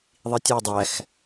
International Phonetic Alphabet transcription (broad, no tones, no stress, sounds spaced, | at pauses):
ðˤ i tʲ ɛ dˤ æ x